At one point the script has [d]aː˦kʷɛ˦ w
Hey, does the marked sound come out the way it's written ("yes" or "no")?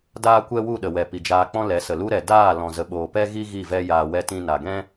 yes